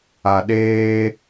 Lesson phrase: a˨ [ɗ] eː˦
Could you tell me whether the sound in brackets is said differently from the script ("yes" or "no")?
no